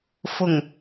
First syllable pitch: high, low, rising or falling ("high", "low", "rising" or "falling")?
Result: low